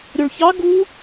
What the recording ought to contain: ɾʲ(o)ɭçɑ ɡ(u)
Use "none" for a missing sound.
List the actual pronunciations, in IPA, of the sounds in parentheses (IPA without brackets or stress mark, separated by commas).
o, u